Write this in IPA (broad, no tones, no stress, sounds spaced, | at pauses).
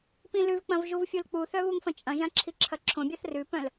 p ĩ l ʉ v k͡p ɐ̃ v ʒ u v fʲ u l k͡p u θ œ β u ŋ f ɐ̃ t͡ʃʼ ɐ̃ ʒ ã ǁʰ i ǁʰ ɐ ǁʰ õ bʲ a θ r ʉ p œ̃ l